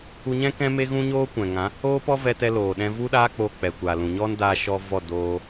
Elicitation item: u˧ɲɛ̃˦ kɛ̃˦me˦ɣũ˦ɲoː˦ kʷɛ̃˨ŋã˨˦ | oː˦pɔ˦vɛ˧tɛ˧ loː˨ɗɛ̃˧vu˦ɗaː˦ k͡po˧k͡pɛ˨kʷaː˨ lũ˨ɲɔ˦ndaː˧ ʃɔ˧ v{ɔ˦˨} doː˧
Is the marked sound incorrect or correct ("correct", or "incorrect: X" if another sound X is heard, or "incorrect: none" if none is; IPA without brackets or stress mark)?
correct